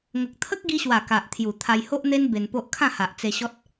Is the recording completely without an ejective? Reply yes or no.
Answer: yes